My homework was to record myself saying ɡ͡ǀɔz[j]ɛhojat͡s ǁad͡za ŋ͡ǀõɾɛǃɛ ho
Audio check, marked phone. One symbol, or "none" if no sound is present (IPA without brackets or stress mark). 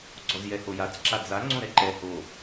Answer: j